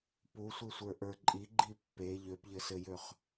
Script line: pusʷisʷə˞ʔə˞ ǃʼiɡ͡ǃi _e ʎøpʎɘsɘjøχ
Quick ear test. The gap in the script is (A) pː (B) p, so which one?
A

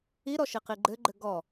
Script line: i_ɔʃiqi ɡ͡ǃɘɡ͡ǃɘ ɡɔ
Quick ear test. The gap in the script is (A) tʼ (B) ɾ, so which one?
B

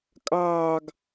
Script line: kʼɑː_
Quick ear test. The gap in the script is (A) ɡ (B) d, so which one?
A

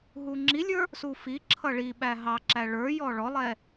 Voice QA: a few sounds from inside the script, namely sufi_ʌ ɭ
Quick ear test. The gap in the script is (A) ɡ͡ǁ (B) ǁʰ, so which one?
B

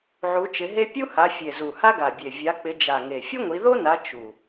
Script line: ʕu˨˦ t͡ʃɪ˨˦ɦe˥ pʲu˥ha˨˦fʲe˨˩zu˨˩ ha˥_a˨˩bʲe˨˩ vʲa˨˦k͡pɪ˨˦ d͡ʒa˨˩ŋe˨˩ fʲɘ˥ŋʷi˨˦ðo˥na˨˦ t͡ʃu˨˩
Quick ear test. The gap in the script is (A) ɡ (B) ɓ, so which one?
A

